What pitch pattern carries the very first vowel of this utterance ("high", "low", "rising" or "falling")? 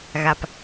low